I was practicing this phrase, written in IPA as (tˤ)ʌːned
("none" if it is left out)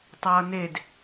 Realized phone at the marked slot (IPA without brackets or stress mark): tˤ